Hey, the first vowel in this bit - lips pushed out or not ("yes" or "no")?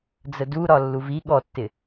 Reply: no